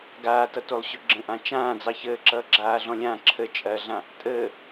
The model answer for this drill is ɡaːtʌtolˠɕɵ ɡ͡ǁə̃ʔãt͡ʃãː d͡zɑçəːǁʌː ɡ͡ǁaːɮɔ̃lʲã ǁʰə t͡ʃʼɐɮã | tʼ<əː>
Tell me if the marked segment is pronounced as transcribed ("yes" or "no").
yes